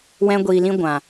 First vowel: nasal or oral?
nasal